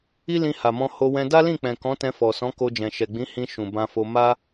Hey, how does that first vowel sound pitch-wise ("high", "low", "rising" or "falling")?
high